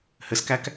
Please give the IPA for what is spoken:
hɘskæk

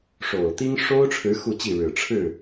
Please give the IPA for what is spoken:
ʂo˨˩ʊ̯t̪i˥ŋ ʂo˥ʊ̯ʈ͡ʂʰɻ̩˧˥ xu˥˧t͡ɕi˥˩ ɻɻ̩˨˩ ʈ͡ʂʰɻ̩˥˩

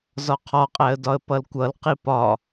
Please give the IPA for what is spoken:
zɒqʰɒqʼæə̯dɒə̯ pʌlkʷʌlqi pɒ

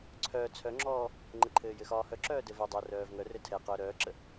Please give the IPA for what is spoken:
ǀʰœː t͡sʰœŋ͡ǁɔː | ŋ͡ǃəǃʰɘː jɘxɒːhœǁœː dɘvɛdˤœ rœːvŋœrɘ tʰɛ qœːɾœːǁə

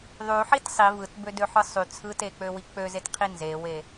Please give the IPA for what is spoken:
ðˤyħit sˤi vɯtbødøħɯ sˤy t͡sʰɯtek͡pøwi k͡pøzetqʰi nzewe

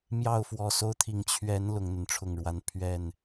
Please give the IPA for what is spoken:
mjɑ˥˨ʊ̯fwɔ˨˩so˦ʊ̯ t̪ʰi˨˩ŋ t͡ɕʰɥɛ˨˦n lʊ˨˦ŋn̪ə˨˦nʈ͡ʂʰʊ˥˨ŋɻwa˦n pʰɥɛ˥˨n

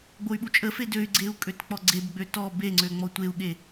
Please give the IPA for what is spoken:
ɡ͡boy̯ɓut͡ʃʼəfe døy̯ɡ͡ǀeu̯ kʼøtk͡pɔɡ͡ǀebɡ͡bø tɔ beŋ͡ǀø ŋ͡mɔtʷeu̯ɠe

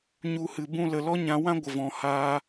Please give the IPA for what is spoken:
ɲu˧hɨ˨bũ˦ lə˨lɔ˦ɲã˧wã˦ ɡʷə˨vɔ̃˨haː˧

